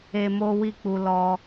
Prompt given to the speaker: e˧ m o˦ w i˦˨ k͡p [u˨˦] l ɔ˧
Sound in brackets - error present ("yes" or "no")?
yes